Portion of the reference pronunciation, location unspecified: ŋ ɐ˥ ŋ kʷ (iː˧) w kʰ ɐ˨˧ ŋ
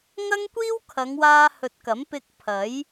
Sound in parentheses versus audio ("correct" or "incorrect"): incorrect